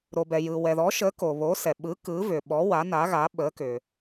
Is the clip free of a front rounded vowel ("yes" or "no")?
no